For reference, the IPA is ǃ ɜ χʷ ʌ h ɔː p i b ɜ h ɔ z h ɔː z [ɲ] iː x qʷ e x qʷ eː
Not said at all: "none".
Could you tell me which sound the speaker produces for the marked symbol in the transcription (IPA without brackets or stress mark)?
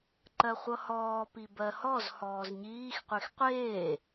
ɲ